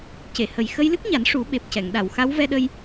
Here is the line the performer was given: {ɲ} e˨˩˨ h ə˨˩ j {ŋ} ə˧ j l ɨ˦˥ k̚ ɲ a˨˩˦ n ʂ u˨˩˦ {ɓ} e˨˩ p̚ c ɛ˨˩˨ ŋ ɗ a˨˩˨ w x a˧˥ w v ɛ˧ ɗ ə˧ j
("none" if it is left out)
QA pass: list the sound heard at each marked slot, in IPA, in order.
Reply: c, x, ɓ

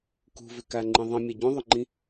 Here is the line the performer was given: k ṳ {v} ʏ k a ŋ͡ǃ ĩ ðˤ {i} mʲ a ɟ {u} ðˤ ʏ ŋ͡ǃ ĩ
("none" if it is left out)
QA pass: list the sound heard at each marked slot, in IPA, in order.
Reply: v, ĩ, ũ

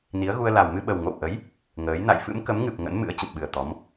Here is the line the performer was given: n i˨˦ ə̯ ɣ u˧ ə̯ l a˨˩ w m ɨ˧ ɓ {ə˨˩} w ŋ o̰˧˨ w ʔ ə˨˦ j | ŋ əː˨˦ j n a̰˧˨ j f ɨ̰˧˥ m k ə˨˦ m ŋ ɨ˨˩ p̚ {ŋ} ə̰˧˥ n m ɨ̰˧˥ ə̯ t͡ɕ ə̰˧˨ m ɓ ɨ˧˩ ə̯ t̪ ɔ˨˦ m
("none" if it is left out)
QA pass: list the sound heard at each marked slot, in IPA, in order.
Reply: ə˨˩, ŋ

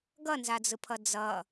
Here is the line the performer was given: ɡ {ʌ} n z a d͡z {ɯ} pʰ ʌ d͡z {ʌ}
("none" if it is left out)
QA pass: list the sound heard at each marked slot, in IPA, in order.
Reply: ʌ, ɯ, ʌ

